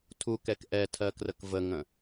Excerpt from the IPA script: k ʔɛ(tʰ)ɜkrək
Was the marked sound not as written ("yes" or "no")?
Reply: no